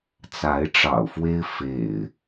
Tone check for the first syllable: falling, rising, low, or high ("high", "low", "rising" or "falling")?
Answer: rising